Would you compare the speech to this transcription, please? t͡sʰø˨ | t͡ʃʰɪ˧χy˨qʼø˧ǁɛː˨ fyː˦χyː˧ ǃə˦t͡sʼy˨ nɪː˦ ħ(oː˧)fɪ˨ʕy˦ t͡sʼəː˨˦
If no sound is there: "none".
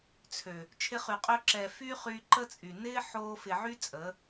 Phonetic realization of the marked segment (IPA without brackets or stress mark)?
oː˧